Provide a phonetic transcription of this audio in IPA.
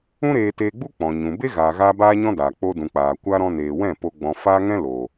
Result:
ũ˦ ɾ eː˧ t eː˧ ɡ͡b u˦ k͡p ɔ̃˨ ɲ ũ˨ b e˦ ɣ aː˨ ɣ aː˧ b aː˦ ɲ ɔ̃˦ d aː˨ k͡p o˧ d ũ˨ k͡p aː˨ kʷ a˧ ɾ ɔ̃˧ n eː˨ w ɛ̃˦˨ p o˧ ɡ͡b ɔ̃˨ f aː˦ ŋ ɛ̃˦ l oː˨

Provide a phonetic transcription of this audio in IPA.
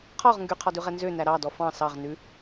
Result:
qʰ ɔ ʁ ŋ ɡ y qʰ ɔ d ʉ ʁ ɛ n z ø n æ ɾ ɑ d ɔ f ɑ̃ s ɑ ʁ n ʉ

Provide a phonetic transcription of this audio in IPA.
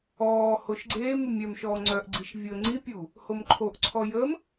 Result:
ɔː h o ʃ ɡ͡ǀ eː m u mʲ œ m ʃ ɔː ŋ͡ǀ œ ʔ ɡ͡ǀ i ʃ vʲ əː ŋ͡ǀ i pʲ u | h o m ǃʰ o ʔ ǀʰ ɔ j ə m

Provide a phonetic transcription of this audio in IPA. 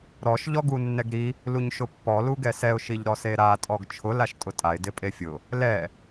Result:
ɾ ɔ ʃ ʎ ɔ ɡ u nː ɛ ɡ ɾ i | l u ɲ ʃ ʊ pː ɔ l u ɡ ɛ s ɛ ʊ̯ ʃ i ʎ ɾ ɔ s e ɾ a tʼ ɔ ɡ t͡ʃʰ ʊ l a ʃ tʼ ʊ tʼ a ɪ̯ d ɪ pʼ e fʲ ʊ | l ɛ

